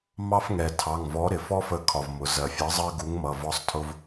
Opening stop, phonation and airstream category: aspirated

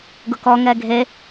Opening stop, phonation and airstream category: plain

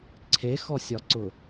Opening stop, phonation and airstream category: click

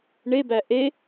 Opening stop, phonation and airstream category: plain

